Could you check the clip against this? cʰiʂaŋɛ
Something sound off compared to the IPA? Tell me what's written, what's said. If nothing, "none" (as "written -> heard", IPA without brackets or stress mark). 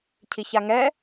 ʂ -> ç